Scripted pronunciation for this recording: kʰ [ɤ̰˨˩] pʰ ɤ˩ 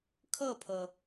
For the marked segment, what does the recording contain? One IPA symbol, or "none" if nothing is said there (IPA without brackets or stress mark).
ɤ˥˩